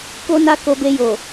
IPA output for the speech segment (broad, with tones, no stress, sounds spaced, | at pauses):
k o˦ n a˦ k o˧ b e˧ j o˨